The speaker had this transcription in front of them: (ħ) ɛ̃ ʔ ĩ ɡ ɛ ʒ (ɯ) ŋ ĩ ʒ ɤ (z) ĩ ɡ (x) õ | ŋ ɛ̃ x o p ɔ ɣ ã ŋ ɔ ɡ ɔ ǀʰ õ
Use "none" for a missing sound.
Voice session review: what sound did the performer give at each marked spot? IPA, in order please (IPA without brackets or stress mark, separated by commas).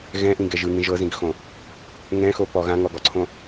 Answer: ɣ, ɯ, z, x